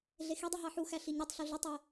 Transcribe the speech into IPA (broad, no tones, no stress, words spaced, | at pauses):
ɮexidˤi ɦɑħuxæ ɬiɲytˤɬu ɮitˤe